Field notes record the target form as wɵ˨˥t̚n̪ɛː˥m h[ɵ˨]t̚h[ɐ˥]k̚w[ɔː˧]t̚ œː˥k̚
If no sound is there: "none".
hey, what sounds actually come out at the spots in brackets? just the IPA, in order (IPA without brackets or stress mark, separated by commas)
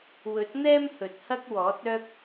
ɵ˨, ɐ˥, ɔː˨˥